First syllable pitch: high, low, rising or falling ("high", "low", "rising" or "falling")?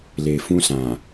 low